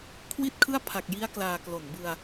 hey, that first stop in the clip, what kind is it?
aspirated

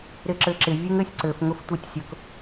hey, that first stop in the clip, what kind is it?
click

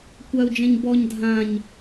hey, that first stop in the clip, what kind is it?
plain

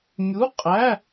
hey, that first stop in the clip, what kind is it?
ejective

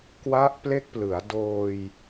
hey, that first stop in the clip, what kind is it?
plain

